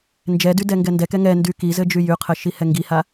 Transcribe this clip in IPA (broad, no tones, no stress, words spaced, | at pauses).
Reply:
nd͡ʒɛdy dɛŋɡɛndɛkɛ ŋɛndy kizɘ d͡ʒyjyqʰɘ ʃihɛŋɡiha